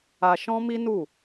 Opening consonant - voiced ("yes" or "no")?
no